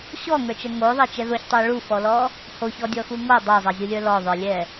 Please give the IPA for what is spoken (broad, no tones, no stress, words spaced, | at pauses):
ɕɔŋə˞t͡ʃɜ ŋoðˤɛt͡ʃɛ ðoçtˤə˞ ɭufɔlɔ | hoçɔdʲɔxu ŋo dˤozˤɛzʲulʲə˞ lɔðˤə˞lʲɛ